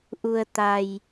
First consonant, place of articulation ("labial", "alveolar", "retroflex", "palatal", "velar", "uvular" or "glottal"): glottal